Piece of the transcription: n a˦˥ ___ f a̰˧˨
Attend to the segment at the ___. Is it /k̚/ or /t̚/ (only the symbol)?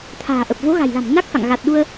k̚